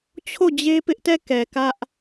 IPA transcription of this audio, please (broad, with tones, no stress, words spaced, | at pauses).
t͡ɕʰo˦˨d͡ʑe˦pɪ˦ʔtɛ˦˨ kɛ˨kä˦ʔ